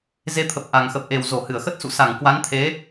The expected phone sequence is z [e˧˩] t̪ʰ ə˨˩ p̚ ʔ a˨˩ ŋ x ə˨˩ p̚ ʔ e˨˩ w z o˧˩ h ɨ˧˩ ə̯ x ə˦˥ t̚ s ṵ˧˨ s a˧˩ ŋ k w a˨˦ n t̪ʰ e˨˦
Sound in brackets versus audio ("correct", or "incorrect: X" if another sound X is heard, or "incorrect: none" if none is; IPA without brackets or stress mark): incorrect: e˨˦